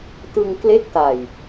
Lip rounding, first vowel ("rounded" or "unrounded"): unrounded